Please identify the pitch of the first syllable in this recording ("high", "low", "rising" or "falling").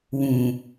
low